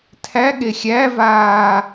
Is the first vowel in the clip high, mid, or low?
low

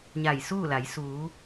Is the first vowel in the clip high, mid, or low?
low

